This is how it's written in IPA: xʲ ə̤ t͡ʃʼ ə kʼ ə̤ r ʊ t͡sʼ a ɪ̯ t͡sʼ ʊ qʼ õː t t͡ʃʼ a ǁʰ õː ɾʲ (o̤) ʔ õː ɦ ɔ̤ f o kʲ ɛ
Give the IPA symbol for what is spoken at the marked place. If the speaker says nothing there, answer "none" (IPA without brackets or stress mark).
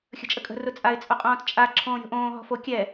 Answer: o̤